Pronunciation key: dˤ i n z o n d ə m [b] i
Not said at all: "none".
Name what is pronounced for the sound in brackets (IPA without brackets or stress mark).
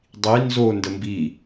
b